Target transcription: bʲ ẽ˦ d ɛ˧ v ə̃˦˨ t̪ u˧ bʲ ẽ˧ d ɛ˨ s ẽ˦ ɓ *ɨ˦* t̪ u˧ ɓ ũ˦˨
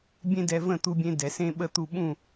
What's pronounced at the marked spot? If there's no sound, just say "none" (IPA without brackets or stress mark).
ə˦